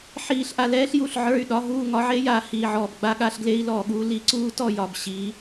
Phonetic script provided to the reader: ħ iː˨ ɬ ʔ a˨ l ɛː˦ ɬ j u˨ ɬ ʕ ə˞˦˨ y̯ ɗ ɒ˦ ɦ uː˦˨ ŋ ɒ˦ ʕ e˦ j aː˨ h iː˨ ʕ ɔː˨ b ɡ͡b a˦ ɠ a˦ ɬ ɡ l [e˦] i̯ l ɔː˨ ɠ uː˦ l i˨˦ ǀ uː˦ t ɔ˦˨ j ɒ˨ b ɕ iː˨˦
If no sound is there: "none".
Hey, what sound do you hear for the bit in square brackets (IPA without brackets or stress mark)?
e˦